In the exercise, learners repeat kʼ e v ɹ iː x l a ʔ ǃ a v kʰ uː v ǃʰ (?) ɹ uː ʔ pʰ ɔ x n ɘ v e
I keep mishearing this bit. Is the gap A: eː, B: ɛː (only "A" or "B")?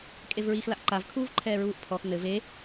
B